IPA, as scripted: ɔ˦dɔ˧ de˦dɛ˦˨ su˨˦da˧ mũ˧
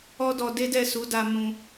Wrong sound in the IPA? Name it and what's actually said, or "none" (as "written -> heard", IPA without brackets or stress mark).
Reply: none